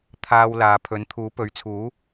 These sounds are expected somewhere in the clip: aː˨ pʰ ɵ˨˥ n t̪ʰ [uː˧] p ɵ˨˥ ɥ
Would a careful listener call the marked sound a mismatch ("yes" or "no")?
yes